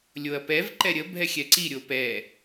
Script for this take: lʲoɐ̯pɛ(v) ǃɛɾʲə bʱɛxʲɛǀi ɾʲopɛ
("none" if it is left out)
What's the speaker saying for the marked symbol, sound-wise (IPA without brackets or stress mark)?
v